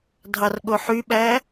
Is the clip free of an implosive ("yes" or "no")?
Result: no